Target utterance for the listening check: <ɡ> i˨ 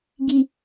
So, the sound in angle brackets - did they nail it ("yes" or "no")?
yes